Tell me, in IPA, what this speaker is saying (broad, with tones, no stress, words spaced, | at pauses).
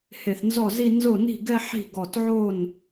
he˧˩θnzɔ˥˩zi˥˧ nzo˥˩ni̤˥˩ɡɛ˥˧ ħi̤˥˩ɡɔ˧˩tʕo˥˩n